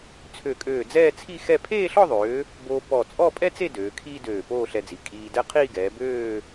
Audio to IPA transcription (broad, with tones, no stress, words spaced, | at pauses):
t͡sʰø˧˩kʼøː˧˩d͡zɛː˥˧ t͡sʰi˥˧xɛ˥˧ pʰeː˥˧ɬɔ˥˧ðˤøː˩˧ | boː˧pɔ˧˩ t͡sʼɔ˥˧pʼɛ˥t͡se˥˧ døː˩˧kʰiː˥ døː˧˩poː˥˧ɬɛ˧d͡zi˩˧ kʼiː˧dɛ˥ qʰiː˥˧ɡɛː˩˧bøː˥˧